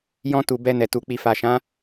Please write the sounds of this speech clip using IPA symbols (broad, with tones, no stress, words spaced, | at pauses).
jɔ̃˧tu˨ bɛ˧nɛ˨tu˨ k͡pi˨fa˨ʃã˨˦